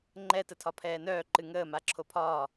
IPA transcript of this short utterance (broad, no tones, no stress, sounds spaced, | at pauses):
ŋ͡ǃ ɛ t ə tʰ ɒ pʰ ɛː n œː ǃ ɨ ŋ əː m a ǁʰ o pʰ ɒː